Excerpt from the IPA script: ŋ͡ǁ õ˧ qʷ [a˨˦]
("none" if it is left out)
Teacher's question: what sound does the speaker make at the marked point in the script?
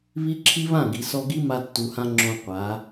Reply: a˨˦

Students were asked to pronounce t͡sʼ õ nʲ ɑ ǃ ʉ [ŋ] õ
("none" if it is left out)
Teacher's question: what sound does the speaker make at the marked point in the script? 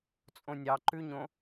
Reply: ɲ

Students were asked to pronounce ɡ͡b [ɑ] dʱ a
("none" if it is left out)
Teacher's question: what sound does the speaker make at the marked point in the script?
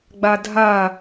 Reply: a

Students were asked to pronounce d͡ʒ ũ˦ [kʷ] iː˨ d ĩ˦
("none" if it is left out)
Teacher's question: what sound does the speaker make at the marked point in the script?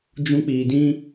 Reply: k͡p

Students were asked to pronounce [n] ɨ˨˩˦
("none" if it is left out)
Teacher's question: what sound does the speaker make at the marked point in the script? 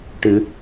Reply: ʈ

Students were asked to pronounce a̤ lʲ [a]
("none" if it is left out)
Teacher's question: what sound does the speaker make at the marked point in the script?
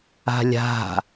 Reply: a̤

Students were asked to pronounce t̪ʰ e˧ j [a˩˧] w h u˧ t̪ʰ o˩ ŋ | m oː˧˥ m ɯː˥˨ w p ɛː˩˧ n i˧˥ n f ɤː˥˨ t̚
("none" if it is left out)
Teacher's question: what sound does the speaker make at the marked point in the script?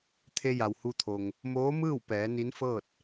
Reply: a˩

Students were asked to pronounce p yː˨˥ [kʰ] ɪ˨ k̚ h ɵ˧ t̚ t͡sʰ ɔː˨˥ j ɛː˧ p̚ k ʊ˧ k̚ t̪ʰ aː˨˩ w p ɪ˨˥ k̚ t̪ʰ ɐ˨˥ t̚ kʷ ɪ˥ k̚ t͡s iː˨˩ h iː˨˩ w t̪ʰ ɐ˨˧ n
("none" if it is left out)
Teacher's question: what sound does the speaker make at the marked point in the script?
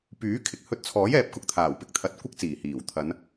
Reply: kʰ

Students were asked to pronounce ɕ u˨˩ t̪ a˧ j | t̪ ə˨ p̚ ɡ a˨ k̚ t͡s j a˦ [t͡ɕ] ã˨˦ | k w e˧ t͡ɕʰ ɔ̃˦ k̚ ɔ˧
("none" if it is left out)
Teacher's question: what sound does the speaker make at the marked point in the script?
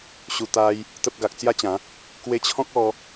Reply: t͡ɕ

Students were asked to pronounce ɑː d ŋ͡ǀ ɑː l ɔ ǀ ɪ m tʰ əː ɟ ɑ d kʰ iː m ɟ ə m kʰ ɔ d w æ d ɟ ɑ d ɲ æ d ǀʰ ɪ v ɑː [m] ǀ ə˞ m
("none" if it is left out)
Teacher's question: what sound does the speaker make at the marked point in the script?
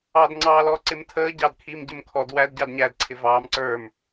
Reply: m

